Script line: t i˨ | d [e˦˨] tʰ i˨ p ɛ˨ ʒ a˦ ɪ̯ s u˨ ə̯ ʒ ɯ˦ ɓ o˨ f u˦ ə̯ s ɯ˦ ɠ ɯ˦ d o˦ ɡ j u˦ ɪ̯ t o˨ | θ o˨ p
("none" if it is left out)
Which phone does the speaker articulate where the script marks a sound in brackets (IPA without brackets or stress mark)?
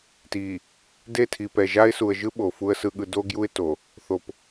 e˦˨